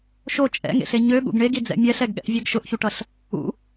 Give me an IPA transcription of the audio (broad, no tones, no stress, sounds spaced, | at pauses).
ʃ o t͡ʃʼ ɛ̰ ŋ ḛ ɬ e ɲ ø ɠ ṵ ɡ ɳ e ɡ i d͡z ɛ̰ mʲ ɛ ɬ ɛ ɡ ɠ ɛ̰ ʔ vʲ e ɡ ʃ ʊ ʔ ç u ʈ ʌ ɬ | ṵ